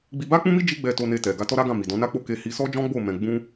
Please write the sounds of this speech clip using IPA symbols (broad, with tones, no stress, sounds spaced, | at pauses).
ɡ͡b i˧ b a˦ k͡p ũ˦ m i˦ d͡ʒ i˦ ɡ͡b ɛ˧ t o˧ n e˧ t ɛ˨ ɡ a˧ t ɔ˦ ɾ a˦ ɡ ã˦˨ m i˨ d ɔ̃˨˦ n a˦ k͡p o˦ k e˧ h i˧ s ɔ˦ d͡ʒ ɔ̃˦ ɡ͡b o˦˨ m ɛ̃˧ ɡ͡b ũ˦